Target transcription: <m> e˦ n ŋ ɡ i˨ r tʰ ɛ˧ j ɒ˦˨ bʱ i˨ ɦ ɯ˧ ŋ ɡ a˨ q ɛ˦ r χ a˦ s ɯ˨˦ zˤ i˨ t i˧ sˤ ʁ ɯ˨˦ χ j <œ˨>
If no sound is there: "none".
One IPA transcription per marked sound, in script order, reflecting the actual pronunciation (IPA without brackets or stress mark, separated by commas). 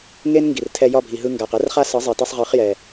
ŋ, ɛ˨